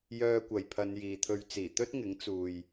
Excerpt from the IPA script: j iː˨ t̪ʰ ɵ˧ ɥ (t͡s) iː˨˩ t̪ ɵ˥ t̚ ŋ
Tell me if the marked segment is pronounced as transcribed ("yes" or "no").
yes